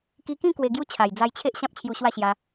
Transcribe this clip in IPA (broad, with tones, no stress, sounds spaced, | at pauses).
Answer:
k i˧ k ĩ˥˧ k w e˧ ɡ j u˦ t͡ɕʰ a˨˩ j d͡z a˧ j t͡ɕʰ e˦ ʔ ɕ ã˦ p̚ t͡ɕʰ j u˧ ɕ w a˥˧ ɕ j a˧